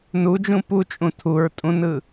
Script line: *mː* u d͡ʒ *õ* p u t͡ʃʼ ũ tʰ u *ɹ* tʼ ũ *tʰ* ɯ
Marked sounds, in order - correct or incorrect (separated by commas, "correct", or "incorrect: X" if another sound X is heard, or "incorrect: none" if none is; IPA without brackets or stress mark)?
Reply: incorrect: n, incorrect: ũ, correct, incorrect: n